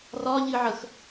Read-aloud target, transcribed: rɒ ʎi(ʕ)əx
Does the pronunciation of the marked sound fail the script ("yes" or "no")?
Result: no